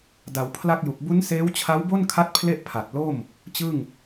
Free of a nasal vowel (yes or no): yes